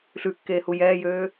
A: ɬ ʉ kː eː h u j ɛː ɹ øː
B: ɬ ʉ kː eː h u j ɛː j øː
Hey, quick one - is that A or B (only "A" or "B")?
B